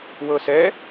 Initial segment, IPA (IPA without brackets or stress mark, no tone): w